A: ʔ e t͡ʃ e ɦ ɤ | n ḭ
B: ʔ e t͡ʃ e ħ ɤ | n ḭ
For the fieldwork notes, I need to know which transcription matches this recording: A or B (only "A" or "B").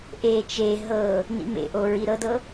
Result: A